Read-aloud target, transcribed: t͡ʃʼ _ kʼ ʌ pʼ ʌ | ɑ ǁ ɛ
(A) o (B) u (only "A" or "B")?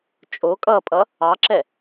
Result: A